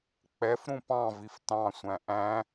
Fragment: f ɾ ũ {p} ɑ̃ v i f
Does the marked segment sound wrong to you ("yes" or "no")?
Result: no